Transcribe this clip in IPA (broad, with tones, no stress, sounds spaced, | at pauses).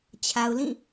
t͡ɕʰ a˨ ʊ̯ l ĩ˦˨